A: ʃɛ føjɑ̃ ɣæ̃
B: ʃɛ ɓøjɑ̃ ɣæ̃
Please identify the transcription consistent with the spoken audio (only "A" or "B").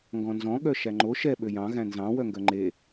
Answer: B